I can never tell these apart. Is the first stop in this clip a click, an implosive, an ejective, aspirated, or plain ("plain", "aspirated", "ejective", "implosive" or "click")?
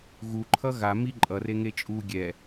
click